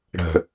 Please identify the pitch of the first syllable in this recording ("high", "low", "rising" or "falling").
low